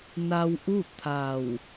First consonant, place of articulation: alveolar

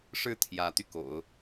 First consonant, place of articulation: retroflex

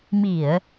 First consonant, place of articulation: labial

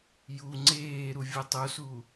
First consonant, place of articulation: palatal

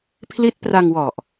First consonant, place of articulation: labial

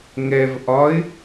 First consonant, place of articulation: velar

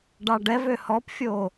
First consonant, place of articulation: retroflex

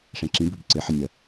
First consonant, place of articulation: retroflex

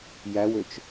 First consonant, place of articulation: palatal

